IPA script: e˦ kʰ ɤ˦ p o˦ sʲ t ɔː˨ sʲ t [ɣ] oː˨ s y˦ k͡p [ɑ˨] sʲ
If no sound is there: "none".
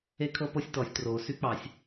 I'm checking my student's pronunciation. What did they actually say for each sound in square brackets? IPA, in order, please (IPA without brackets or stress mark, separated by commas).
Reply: r, ɑ˨